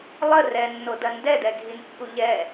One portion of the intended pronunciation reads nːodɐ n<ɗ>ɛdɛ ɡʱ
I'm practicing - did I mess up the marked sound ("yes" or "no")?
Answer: yes